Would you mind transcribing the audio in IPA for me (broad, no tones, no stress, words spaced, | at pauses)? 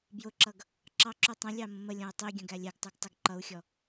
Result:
bjʊǁʌɡ | ǁɑǁu tˤə̃lʲɑ mə̃məlʲɔ̃u̯ tˤiɡʲə̃ ɡælʲɛɡtˤuɡ tˤɪɡǃʌu̯xʲɔ